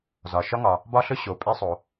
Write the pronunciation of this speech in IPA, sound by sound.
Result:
z ɒ˩ ʃ ɒ˧ ŋ ɒ˩ | b ɒ˧ ɬ ɵ˧ ɕ o˩ pʼ e˧ sˤ o˩

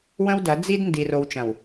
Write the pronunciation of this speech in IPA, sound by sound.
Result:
w ə̃˦ w d ɐ˨˦ d͡z i˦ d n d i˨ r o˨˦ w t͡ʃ ɐ̃˨ w

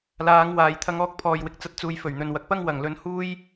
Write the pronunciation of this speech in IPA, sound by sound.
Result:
l aː˨˧ ŋ w aː˨ j t̪ʰ ɐ˧ ŋ ɔː˧ k̚ pʰ ɔː˨ j w ɪ˨ k̚ t͡s ɐ˧ t̚ t͡s uː˨ j f ɵ˨˩ ɥ n̪ ɵ˨ n w ɐ˨ k̚ p ɐ˥ ŋ w ɐ˨˩ ŋ l ɵ˨ n h uː˥ j

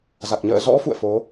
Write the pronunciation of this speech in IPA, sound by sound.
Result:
z a˨˩ k̚ ɲ ə̰ː˧˨ z ɔ̰˧˥ f ṵ˧˨ ə̯ f o˨˦

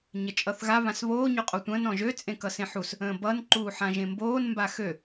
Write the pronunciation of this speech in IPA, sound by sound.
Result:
ɲ ə t͡ʃʼ ʌ θ ɣ a β ã s β oː ɲ o qʼ o tʷ ə̃ː n ɔ̃ ʒ ø t͡sʼ ẽ k ʌ s ẽ ħ u s | ə̃ː b ʌ n ǃ uː ħ ã ʒ ẽ m b oː n m b a x ø

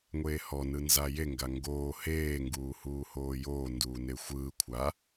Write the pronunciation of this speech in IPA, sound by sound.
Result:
ŋʷ eː h ɔ n ɯ n z a j e ŋ ɡ a ŋ ɡ oː h eː ŋ ɡ uː h uː h oː j oː n d uː n e xʷ ɯː kʷʰ a

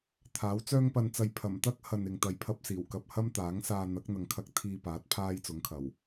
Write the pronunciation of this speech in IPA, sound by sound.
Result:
t̪ʰ aː˨˥ w t͡s œː˧ ŋ p ɐ˨ n t͡s ɐ˨ j pʰ ɐ˨˩ m t̪ ɐ˥ k̚ h ɐ˨ n ɪ˨ ŋ t̪ ɐ˨ j pʰ ɐ˧ p̚ s iː˨˩ w k ɐ˧ p̚ h ɐ˥ m t̪ aː˨˥ ŋ s aː˧ n̪ ɐ˨˥ k̚ n̪ ɐ˨ ŋ kʰ ɐ˧ k̚ t̪ʰ iː˨ p aː˨˥ t̚ pʰ aː˥ j t͡s ʊ˨˥ ŋ kʰ ɐ˨˩ w

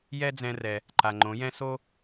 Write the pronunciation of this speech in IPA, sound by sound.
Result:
j ɛ˥ d͡z ɛ̃˧ r ɛ˩ | ǃ a˩ ŋ͡ǃ õ˩˧ j ɛ̃˧ s o˥

